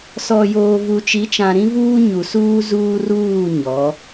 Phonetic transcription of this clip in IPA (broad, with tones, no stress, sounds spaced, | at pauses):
s ɔ˨ j oː˨ v u˨ t͡ʃ i˨˦ t͡ʃ ã˨ ɾ ĩ˦ v uː˦ ɲ u˨ s uː˦ z uː˦ r uː˦˨ ɲ ɔ˨˦